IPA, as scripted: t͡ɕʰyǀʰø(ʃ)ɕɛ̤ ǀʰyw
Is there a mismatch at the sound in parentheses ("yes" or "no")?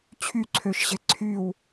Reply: no